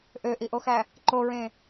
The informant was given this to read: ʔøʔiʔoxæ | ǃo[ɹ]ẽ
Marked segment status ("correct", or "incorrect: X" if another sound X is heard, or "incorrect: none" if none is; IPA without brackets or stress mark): correct